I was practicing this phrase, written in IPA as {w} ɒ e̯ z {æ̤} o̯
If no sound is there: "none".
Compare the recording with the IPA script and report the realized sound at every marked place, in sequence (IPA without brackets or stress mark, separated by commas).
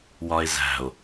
w, æ̤